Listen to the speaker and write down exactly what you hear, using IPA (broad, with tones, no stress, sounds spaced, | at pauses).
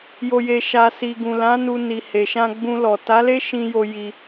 j o˨ j e˨ ʃ a˨ s i˨ ɡ ũ˨ l ã˨˦ n u˧ n i˨ h e˨ ʃ ã˧ ɡ͡b ũ˧ l ɔ˨ t a˨˦ l e˦ ʃ ĩ˧ j o˧ j i˧